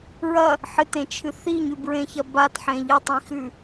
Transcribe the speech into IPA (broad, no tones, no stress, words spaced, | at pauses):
ɹɐ | ħɨtẽt͡ʃʰɨ θiɲʉbɹẽçɐ batħẽ ʎɐtˤĩxʉ